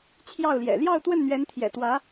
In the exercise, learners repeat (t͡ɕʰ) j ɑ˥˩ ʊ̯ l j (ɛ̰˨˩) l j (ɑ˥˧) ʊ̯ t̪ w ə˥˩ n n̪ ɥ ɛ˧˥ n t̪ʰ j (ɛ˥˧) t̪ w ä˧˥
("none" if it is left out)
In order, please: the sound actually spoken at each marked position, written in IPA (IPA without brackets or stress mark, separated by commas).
t͡ɕʰ, ɛ̰˨˩, ɑ˥˧, ɛ̰˨˩